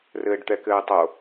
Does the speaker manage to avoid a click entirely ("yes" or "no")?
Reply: yes